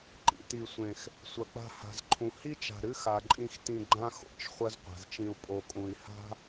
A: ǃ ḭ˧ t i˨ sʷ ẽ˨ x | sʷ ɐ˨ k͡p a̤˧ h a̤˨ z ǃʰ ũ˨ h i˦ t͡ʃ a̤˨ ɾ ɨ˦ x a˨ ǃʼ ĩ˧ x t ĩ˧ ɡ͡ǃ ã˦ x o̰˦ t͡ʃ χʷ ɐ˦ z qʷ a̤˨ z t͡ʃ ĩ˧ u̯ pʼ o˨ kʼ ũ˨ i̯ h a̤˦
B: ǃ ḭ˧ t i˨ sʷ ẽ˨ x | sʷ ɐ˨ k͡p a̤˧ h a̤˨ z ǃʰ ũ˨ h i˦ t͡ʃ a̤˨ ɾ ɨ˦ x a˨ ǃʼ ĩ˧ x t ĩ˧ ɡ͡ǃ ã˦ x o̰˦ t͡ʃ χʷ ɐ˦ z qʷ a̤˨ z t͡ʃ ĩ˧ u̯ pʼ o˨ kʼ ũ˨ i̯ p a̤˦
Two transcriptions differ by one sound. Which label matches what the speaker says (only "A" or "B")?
A